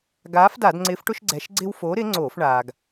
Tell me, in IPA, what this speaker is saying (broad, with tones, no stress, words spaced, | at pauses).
ɡaː˨˥fda˧˩˧dŋ͡ǀɪː˨˥fʈʊ˦ʃ ɡ͡ǀɛ˩˧ʃɡ͡ǀɪ˦w foː˨˥ɾɪː˨˥ŋ͡ǀoː˧˩˧f ɳaː˩ɡ